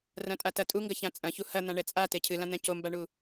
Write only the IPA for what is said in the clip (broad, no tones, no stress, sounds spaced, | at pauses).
r ɐ̃ tʼ a t ɐ tʼ u ŋ ɡ ɐ ç ã t͡sʼ ɐ̃ ç u h ɐ n̪ ã ɳ ɛ t͡sʼ a t e cʰ ɨ l ã n̪ ɛ̃ c o m b a ɳ u